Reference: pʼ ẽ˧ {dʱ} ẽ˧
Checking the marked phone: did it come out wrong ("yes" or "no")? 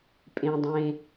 yes